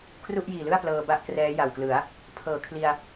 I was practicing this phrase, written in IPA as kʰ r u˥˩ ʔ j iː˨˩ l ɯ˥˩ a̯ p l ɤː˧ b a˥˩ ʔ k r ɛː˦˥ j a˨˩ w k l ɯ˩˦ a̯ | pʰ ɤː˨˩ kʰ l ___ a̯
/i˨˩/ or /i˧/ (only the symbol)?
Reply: i˧